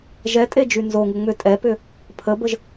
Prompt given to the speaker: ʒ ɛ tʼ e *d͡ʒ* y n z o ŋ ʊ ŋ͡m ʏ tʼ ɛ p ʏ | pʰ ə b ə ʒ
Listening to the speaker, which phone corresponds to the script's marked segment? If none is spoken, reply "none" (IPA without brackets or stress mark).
d͡ʒ